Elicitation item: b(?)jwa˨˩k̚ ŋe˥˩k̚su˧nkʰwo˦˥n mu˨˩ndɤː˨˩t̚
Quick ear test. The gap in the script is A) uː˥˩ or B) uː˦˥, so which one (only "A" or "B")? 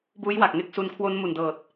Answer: B